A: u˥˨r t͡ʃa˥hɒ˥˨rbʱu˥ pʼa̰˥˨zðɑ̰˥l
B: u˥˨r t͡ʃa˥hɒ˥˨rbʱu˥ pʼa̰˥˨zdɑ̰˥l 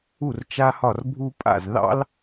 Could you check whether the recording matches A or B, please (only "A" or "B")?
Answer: A